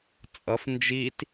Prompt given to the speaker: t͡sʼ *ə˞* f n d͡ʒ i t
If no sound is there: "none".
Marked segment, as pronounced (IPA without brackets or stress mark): ʌ